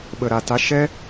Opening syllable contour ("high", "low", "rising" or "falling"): low